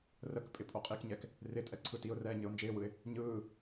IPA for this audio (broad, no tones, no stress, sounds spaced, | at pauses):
r ə k pʼ ɪ pʼ o qʼ i k ɲ ɛ k | r ɪ tʼ ɛ ǀʰ ɯ t i ʊ̯ r ɛː ɲ ɘ ʊ̯ n d͡ʒ ɪː w ɯ ɪ̯ | ɲ ɯː